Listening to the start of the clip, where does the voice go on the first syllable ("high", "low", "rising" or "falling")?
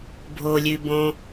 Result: low